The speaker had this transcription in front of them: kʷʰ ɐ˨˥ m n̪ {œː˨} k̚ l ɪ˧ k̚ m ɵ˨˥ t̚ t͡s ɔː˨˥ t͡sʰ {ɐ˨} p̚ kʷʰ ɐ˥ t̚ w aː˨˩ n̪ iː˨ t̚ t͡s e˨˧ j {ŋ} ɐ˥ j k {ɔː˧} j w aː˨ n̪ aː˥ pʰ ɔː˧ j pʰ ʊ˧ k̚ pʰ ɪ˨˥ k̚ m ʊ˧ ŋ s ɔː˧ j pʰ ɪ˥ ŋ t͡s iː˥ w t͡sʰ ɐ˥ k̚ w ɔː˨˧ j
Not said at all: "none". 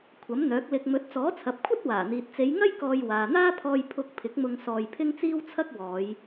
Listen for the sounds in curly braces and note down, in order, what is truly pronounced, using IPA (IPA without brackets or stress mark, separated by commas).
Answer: œː˨˥, ɐ˨, ŋ, ɔː˧